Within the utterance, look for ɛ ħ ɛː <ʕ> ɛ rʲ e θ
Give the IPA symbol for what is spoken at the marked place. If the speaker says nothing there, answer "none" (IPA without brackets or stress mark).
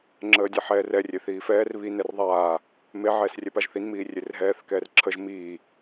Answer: r